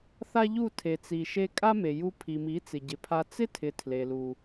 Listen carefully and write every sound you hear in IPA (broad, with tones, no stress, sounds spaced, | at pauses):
θ a˦ ʎ u˦˨ tʰ e˨ t͡s i˨ ʃ e˧ kʼ a˦ m e˨ j u˧ pʰ i˨ m i˨˦ t͡s ɪ˨ ɟ ɪ˨ pʰ a˧ t͡s ɪ˦ tʰ ɪ˨ tʰ l e˨ l u˨